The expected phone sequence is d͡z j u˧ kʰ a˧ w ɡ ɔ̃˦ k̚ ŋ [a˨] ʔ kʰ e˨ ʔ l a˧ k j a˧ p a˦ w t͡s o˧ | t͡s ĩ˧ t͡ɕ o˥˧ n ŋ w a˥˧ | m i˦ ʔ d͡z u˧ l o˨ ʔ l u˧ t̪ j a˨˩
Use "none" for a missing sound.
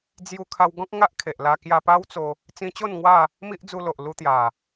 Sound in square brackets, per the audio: a˦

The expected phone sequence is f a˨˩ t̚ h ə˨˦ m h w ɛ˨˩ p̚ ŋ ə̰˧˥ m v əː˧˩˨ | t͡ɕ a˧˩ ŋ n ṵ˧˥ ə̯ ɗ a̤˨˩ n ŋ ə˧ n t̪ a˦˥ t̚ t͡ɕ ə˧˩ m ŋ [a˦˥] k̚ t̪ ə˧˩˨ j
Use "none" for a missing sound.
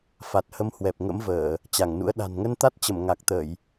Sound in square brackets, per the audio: a˨˩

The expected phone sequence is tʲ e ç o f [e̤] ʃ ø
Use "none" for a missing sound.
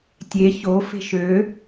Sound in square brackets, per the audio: e̤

